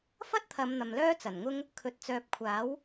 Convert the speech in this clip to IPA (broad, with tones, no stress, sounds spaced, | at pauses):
f ɐ˥ t̚ t̪ʰ ɐ˨˧ m n̪ ɐ˨ m l œː˥ t͡s ɐ˨˩ n ŋ ʊ˥ ŋ | kʰ ɵ˨˥ t̚ t͡s œː˨ p̚ kʷʰ aː˨˥ w